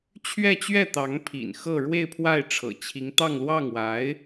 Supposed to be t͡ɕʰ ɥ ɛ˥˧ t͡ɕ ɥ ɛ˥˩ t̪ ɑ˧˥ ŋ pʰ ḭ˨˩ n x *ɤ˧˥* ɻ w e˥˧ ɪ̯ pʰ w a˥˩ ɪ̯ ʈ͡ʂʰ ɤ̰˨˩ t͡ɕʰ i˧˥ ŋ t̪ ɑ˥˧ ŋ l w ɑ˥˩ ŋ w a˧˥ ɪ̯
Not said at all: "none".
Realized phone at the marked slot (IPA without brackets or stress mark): ɤ˥˧